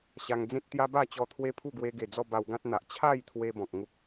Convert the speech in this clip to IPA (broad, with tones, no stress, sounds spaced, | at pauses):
ɕ a˧ ŋ d͡z ẽ˦ t̚ t̪ j a˦ b a˥˧ t͡ɕ ɔ˧ t̪ʰ w e˦ pʰ u˥˧ ɡ w e˧ ɡ e˨˩ d͡z ɔ˥˧ b a˧ w ɡ ã˦ t̚ n̪ a˨ ʔ t͡ɕʰ a˥˧ j t̪ʰ w e˧ b ɔ̃˨ k̚ ŋ u˦ k̚